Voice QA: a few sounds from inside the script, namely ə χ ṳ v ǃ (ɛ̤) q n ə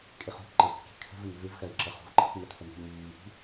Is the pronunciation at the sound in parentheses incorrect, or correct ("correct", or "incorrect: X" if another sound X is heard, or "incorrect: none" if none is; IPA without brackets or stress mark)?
incorrect: ə̤